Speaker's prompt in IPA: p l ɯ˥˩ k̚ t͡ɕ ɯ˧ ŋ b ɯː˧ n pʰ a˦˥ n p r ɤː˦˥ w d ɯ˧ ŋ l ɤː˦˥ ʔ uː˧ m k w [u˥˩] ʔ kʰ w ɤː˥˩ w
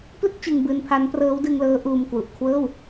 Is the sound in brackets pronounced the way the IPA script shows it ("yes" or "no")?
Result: no